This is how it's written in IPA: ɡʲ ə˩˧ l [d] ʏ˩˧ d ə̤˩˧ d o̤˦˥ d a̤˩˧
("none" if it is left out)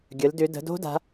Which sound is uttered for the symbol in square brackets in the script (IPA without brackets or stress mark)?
d